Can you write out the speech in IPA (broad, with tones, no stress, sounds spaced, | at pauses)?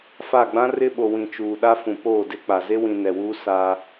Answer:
f a˦˨ ɡ͡b ã˦ r ɪ˦ ɓ o˨ w ĩ˨ t͡ʃ uː˨ ɗ a˦ f ũ˨ p oː˦˨ d ɪ˦ k͡p a˨ z e˦ w ĩ˨ n ɛ˨ w uː˦ s a˦